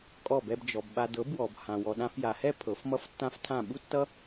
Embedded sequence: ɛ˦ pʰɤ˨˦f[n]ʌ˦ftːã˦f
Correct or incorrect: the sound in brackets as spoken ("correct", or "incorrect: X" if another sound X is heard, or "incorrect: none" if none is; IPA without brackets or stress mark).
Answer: incorrect: m